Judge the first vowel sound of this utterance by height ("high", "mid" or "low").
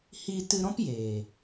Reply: high